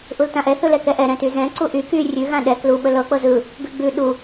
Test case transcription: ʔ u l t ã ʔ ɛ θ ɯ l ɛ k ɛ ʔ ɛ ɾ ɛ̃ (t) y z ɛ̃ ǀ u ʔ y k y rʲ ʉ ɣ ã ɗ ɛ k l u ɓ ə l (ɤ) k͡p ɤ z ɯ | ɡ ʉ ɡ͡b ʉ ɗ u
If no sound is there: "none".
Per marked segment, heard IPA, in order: t, ɤ

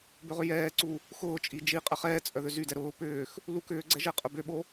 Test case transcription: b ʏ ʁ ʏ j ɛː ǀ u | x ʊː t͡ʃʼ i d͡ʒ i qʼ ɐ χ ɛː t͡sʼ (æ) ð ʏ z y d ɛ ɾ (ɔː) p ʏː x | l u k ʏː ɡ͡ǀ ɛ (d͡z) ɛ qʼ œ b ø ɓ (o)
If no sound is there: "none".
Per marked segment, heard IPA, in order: œ, ʊː, ʒ, o

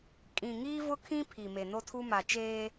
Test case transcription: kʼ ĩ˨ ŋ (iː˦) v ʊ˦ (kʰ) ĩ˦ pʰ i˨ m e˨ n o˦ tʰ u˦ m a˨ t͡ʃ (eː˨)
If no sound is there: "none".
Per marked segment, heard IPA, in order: iː˦, kʰ, eː˦

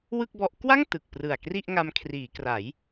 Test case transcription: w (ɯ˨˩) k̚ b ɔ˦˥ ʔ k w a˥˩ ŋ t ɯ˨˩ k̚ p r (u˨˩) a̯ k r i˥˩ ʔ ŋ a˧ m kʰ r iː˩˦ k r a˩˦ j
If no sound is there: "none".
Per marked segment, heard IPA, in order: ɯ˥˩, ɯ˨˩

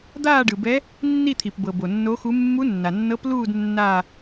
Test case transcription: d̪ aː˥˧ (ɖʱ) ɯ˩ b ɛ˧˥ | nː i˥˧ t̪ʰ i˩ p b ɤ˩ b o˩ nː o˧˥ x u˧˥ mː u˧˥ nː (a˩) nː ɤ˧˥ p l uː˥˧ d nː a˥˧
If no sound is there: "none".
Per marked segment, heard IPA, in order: ɖ, a˩

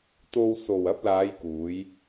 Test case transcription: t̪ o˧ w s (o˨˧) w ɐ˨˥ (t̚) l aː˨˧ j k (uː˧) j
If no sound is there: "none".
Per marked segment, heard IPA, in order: o˨, p̚, uː˨˧

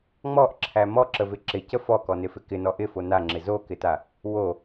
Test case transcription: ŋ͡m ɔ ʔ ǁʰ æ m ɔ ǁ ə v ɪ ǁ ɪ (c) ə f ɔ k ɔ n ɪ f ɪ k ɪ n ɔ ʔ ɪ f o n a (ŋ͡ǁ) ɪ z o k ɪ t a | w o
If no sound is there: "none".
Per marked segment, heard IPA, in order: c, ŋ͡ǁ

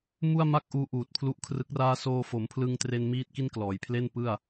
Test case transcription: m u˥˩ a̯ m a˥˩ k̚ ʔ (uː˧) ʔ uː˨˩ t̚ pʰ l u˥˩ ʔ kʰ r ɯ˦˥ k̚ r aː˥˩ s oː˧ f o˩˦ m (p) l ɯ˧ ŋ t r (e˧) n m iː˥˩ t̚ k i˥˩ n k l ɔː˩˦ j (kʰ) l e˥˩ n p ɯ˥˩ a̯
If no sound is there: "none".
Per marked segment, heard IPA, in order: uː˧, pʰ, e˧, pʰ

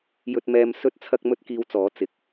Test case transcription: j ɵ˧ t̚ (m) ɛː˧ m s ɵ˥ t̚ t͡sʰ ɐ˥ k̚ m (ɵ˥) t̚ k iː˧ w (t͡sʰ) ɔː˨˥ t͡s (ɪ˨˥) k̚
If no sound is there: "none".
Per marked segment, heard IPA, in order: m, ɵ˥, t͡s, ɪ˨˥

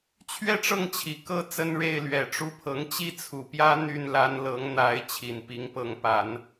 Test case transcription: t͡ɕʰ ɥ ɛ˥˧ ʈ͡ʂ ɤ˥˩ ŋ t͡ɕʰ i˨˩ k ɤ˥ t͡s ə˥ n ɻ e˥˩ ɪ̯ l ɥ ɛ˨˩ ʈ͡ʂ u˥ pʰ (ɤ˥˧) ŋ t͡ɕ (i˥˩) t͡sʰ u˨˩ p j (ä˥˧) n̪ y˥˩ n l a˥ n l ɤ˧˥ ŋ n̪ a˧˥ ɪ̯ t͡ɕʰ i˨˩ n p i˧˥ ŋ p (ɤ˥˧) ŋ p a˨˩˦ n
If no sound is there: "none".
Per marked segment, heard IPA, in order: ɤ˧˥, i˥˩, ä˥, ɤ˧˥

